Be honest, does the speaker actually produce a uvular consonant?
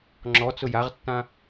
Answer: yes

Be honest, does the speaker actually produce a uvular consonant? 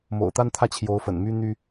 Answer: no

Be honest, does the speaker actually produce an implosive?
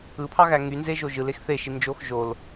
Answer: no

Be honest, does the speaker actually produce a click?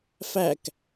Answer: no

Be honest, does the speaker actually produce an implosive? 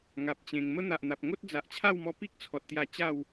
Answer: no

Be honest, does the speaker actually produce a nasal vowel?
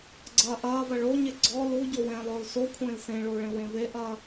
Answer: yes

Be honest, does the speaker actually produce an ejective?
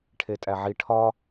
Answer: yes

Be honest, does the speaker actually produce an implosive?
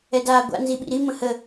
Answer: yes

